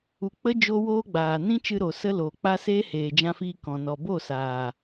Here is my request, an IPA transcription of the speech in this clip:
u˧ k͡pə˦ d͡ʒo˦woː˦ɡ͡baː˨ nĩ˦t͡ʃɨ˧ ɾo˨ sə˦loː˨k͡pa˦ seː˦heː˨d͡ʒã˧fiː˧ kɔ̃˨ nɔ˨bo˦˨saː˨

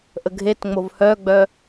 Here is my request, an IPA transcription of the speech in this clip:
ʔəɡʱetŋ͡mov hœɡ͡bœ

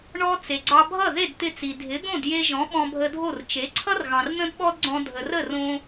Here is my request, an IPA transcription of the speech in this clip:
ɳɔ˧ t͡se˩ɡ͡ǀɑ˧bʱʌ˥˩ ðe˥˩dt̪ɪ˧t͡si˩ dʱɪ˩˥ d̪õ˥˩dje˧ʒɔ̃˩˥ ɓɔ̃˧bʱə˧dʱo˥˩r t͡ʃe˩˥ǀʰʌ˥r ɣɑ̃˩rn̪ə̃˥dɓɔ˥dɡ͡ǀɔ̃˧ dʱə˩rə˥˩rõ˧

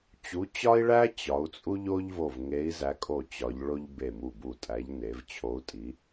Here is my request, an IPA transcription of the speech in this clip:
t͡ɕu˨˦ t͡ɕɒ˥i̯ɭæ˥ t͡ɕɒ˨˦u̯t͡sʼu˥ʎo˥ʎ vo˧˩vŋe˨˦i̯zæ˨˦kʼo˧˩ t͡ɕɒ˨˦ʎɭo˥ʎ be˧˩mu˧˩bu˧˩tʼæ˨˦ʎ ne˨˦v t͡ɕʰo˨˦u̯tʼi˨˦

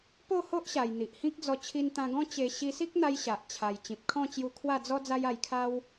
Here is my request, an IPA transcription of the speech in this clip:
po˥˧ ho˦ʔɕa˨˩j n̪i˨ʔhĩ˦k̚d͡zɔ˧ t͡ɕʰi˧nt̪ã˧ɡɔ̃˦ t͡ɕe˧ ɕi˧si˦k̚n̪a˧j ɕa˨ʔ t͡ɕʰa˨˩j t͡ɕĩ˨p̚kʰɔ̃˥˧ t͡ɕju˧kʰwa˥˧d͡zɔ˦ d͡za˦ja˧jkʰa˦w

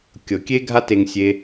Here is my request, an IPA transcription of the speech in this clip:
kʲɤ˨ kʲe˦ɡʱa˦te˧ŋsʲe˧

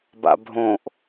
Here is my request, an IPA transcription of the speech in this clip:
ba̰bʱõʔ

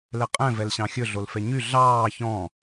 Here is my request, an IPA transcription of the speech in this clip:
lɛqʼɛ̃vɛl ɕɑ̃xʲɵɮol fɛɲy ɮɑː çɔ̃

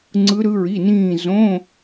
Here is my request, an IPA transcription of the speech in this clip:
ŋ͡ǀɯ˦˥ɾɯ˦˥ɹi˧˥˧nĩː˥˧ zõ˧˥˧

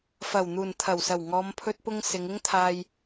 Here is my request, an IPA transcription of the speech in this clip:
fɐ˨˩wn̪uː˨˩nt̪ʰɐ˨˩wsɐ˨˩w ŋɔː˨˧mpʰɵ˧t̚pʊ˧ŋ sɪ˨˧ŋɪ˥ŋt̪ʰaː˧j

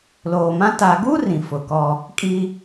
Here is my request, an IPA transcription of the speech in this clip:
loː˨mã˦ ta˨ɡu˦ rĩ˨fʊ˨kɔ˦ | kʼi˦

